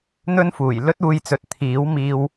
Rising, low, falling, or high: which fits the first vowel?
high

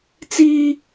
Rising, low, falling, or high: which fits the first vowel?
high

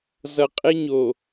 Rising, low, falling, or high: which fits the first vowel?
low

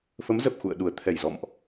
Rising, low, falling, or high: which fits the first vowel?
rising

